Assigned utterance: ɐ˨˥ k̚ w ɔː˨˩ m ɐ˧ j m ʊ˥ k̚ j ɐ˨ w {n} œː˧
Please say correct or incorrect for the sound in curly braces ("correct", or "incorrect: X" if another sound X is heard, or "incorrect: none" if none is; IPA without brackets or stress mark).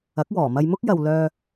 incorrect: l